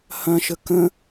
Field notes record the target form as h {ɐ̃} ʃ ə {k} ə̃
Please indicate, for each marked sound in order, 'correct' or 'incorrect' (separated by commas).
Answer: correct, correct